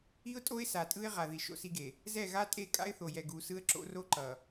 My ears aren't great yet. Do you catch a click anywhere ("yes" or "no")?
yes